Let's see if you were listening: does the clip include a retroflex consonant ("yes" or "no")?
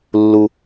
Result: no